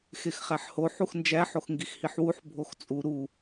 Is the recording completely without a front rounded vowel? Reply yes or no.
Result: yes